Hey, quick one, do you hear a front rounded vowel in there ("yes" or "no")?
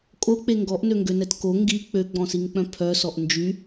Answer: yes